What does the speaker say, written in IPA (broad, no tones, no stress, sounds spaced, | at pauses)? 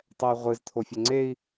tˤ ɛ y̯ ʁʷ ɨ z t̪ʰ o fʲ ɐ ŋ͡ǀ e i̯